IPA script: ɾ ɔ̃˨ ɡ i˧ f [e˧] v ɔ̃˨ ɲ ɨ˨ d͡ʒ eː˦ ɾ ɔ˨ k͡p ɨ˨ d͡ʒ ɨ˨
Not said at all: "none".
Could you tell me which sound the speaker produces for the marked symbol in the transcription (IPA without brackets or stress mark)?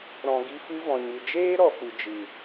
ɨ˧